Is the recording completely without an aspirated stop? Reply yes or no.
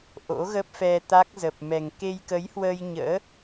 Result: yes